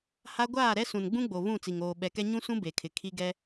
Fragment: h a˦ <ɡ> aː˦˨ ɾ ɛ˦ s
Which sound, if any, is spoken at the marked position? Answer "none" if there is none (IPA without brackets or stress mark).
ɡʷ